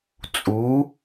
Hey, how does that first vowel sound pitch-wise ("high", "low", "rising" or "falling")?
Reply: rising